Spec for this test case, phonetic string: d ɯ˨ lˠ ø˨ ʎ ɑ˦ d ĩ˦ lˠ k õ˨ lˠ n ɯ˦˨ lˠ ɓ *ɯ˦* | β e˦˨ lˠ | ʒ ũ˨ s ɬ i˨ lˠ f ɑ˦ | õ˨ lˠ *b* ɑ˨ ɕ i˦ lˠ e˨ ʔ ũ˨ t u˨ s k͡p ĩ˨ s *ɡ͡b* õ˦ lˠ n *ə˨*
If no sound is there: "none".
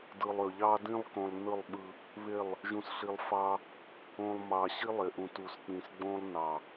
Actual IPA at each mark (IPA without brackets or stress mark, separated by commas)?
ɯ˦, m, ɡ͡b, ɑ˨